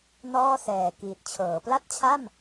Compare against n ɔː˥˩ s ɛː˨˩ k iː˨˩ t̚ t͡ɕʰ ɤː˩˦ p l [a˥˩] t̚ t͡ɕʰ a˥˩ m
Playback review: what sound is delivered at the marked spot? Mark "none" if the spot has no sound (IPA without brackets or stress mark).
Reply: a˥˩